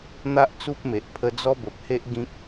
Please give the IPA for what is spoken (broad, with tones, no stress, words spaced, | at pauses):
n̪a˦ʔt͡su˦p̚me˨ʔ pʰə˧d͡zɔ˦bə˨p̚he˦ʔ ɡĩ˦k̚